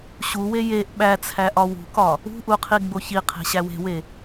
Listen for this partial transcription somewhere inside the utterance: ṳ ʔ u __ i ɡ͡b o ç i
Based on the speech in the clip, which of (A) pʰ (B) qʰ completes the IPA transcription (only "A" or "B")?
B